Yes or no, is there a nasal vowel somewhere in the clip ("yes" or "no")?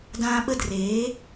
yes